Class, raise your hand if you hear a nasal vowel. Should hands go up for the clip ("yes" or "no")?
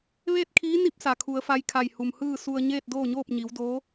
no